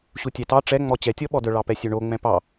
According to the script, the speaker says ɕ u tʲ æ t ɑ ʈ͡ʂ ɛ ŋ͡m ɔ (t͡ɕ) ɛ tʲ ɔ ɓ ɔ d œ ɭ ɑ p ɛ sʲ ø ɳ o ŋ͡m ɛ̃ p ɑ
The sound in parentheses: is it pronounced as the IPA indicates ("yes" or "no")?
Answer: yes